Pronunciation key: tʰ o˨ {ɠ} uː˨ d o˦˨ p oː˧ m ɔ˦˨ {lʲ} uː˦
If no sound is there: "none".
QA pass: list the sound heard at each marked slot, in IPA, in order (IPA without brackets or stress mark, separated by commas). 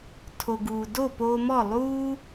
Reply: ɡ, lˠ